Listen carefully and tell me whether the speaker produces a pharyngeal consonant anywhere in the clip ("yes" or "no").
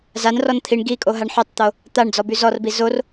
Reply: yes